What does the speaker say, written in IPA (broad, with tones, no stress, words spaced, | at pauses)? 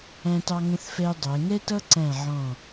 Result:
æ̃˧tɑ˧ŋə̃˧θfɛ˧j dˤɛ˩˧ ŋɛ˥tʌ˥ǀæ̃˧˩ ʕɔ̃˧˩